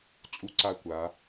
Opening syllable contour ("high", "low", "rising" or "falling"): high